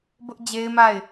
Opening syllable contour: high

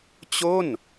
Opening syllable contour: falling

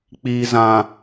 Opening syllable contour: low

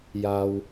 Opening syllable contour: low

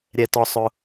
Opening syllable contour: low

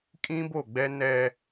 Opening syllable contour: high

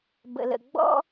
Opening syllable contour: low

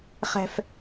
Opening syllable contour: high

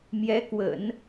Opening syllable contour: rising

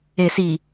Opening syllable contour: low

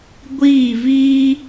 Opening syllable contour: falling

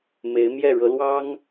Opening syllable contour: rising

